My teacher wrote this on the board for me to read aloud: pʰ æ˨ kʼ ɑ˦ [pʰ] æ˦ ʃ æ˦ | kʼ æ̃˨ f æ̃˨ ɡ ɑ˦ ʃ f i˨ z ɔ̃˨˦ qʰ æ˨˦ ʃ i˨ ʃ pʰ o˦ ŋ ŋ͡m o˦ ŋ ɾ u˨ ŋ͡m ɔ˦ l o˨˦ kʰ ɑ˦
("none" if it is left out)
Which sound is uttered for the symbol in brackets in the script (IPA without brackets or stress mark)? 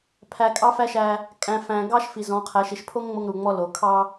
f